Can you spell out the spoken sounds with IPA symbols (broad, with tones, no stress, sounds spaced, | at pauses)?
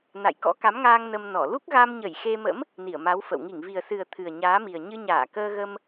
n a̰˧˨ j k ɔ̰˧˥ k a˨˦ m ŋ aː˧ ŋ n ə˧ m n ɔ˧˩ l u˦˥ k̚ ɣ a˧ m ɲ ə˧˩ j x e˧ m ə̰˧˥ m | n i˧˩ ə̯ m a˨˦ w f ə̰˧˨ w ŋ i˧˩ ŋ v i˨˩ ə̯ s ɨ˨˩ ə̯ t̪ʰ ɨ˨˩ ə̯ ɲ aː˨˦ m i˨˩ ə̯ ɲ ɨ˧ ɲ aː˧˩ k əː˧ ɣ ə˧ m